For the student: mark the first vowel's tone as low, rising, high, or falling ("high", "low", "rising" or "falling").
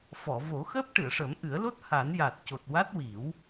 low